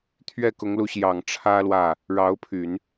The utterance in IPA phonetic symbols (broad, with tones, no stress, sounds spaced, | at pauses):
t̪ʰ ɥ ɛ˥˩ k ʊ˧˥ ŋ l u˧˥ ɕ j ɑ˨˩ ŋ ʈ͡ʂʰ ä˥ l w ä˥˩ | ɻ ɑ˧˥ ʊ̯ pʰ y˨˩˦ n